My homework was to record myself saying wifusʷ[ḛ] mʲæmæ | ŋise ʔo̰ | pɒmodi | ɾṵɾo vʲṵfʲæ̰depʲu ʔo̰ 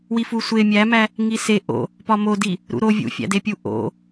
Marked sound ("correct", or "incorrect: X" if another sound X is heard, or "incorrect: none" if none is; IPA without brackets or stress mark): incorrect: e